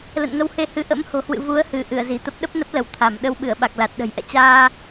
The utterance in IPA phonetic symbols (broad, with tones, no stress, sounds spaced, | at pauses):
l ə̰˧˨ n ŋ ə˧ w h e˧ h ɨ˧ ʔ ə̰˧˥ m h o̤˨˩ h w ɨ̰˧˨ v u˨˦ ə̯ h ɨ˧˩ ʔ ɨ˧˩ ə̯ z i˧˩ t̪ ə˦˥ p̚ ɗ ə˦˥ p̚ n ə˦˥ p̚ l ə˧˩ w t̪ʰ a˧˩ m ɗ ə˧ w ɓ ɨ˧˩ ə̯ ɓ a˨˩ k̚ l a˨˩ t̚ ɗ ə̤˨˩ j ʔ ɛ̰˧˨ t͡ɕ aː˧